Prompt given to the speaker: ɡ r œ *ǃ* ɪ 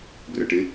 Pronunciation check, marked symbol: incorrect: ʈ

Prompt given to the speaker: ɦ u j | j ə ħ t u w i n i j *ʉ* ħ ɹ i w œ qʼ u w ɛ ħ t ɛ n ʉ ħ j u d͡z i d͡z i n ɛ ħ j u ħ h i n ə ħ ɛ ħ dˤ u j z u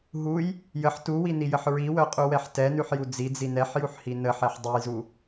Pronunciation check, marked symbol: incorrect: ə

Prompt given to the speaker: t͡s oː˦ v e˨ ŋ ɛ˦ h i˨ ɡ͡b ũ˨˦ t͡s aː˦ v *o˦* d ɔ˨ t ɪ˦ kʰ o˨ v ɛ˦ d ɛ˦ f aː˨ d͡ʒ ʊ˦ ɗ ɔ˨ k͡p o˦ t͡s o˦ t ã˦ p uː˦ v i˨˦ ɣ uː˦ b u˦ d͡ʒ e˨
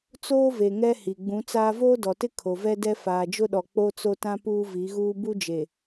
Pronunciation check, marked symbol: incorrect: oː˦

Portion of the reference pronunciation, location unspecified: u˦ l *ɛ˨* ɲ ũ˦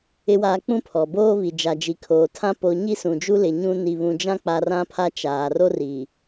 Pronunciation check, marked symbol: incorrect: ɪ˨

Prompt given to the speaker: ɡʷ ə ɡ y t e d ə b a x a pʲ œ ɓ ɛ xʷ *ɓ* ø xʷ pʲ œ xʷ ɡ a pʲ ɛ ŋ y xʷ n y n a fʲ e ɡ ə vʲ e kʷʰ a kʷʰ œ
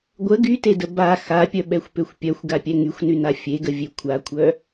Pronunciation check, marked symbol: incorrect: p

